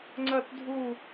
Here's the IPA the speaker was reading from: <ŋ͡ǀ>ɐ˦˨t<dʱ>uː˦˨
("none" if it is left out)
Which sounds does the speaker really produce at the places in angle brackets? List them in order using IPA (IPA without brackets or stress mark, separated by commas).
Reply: ŋ͡ǀ, dʱ